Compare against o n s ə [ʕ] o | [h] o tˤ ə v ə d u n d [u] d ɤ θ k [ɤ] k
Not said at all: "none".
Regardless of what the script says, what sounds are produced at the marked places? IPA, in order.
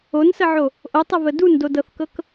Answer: ʕ, ʔ, o, ɤ

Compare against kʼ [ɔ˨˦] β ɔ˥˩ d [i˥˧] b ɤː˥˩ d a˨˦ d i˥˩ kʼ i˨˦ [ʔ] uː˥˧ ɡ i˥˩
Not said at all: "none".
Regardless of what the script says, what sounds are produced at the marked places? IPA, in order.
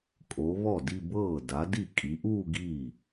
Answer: o˨˦, i˥˧, ʔ

